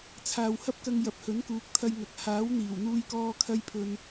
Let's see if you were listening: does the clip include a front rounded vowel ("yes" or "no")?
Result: no